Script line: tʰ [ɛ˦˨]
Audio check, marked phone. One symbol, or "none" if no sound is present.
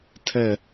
ɛ˦˨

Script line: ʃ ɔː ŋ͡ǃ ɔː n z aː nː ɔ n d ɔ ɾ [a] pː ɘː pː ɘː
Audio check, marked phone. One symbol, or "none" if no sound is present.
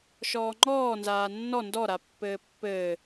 a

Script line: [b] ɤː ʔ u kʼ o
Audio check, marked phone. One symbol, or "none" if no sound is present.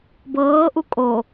b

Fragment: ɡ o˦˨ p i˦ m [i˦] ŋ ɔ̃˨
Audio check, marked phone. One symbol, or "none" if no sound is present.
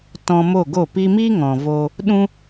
i˦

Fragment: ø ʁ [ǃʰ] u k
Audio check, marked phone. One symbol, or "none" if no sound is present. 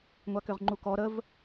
ŋ͡ǃ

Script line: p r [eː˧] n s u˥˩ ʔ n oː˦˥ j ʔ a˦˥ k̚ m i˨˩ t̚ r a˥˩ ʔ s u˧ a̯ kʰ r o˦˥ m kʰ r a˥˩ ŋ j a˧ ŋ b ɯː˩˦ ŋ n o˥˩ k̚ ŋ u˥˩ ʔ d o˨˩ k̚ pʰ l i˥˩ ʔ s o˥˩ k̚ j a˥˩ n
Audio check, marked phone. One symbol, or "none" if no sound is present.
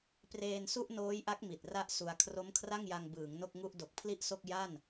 eː˧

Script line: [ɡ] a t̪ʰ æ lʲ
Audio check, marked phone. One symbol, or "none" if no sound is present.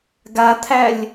ɡ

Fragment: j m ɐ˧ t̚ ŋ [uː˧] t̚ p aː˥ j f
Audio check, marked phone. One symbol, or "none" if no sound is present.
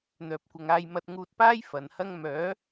uː˧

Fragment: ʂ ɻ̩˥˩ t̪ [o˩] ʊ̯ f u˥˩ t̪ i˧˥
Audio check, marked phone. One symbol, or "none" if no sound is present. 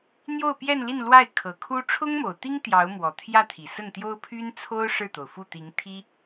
o˩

